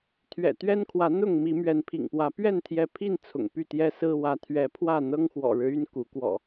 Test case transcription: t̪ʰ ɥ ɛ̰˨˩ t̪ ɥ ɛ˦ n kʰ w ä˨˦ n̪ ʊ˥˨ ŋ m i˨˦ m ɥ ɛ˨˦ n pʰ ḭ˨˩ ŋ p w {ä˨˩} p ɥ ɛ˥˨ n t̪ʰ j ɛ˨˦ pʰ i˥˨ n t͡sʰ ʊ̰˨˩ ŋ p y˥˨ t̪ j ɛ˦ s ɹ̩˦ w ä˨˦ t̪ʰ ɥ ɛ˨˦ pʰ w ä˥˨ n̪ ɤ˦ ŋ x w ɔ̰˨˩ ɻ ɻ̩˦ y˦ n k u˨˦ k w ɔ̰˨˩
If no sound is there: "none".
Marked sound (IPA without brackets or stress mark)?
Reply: ä˨˦